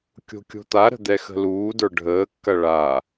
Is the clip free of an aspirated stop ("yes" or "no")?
yes